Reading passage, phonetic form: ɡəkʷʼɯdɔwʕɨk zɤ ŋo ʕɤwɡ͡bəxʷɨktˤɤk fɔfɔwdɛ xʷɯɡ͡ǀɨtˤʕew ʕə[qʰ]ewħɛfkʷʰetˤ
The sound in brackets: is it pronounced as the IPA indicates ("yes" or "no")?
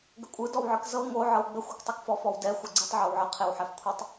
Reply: yes